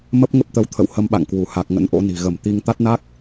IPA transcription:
m ə˦˥ p̚ ŋ ə˦˥ p̚ t̪ ə˨˦ w t̪ʰ ə̰˧˨ w h ə˧ m ɓ a̰˧˨ ŋ k w u˧˩ h a˨˩ k̚ ŋ ə̰˧˥ n ʔ o̰˧˥ n i̤˨˩ ɣ ə˧˩ m t̪ i˧ ŋ t̪ a˦˥ t̚ n a˦˥ k̚

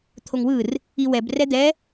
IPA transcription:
t̪ʰ o ŋ w ɯ r | i w ɛ b r ɛ d̪ ɛ

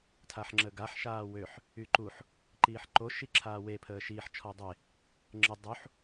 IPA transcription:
tʰ a ħ ŋ͡ǁ ə ɡ a ħ ʃ aː w ø ħ | y ǃ u ħ | ǃ iː ħ ǃ o ʃ i ǁʰ aː w e pʰ əː ʃ iː ħ t͡ʃʰ ɔ dˤ e | ŋ͡ǁ ə dˤ u ħ

